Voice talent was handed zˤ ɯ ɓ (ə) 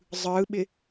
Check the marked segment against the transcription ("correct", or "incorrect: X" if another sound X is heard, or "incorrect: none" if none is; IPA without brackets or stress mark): incorrect: ɪ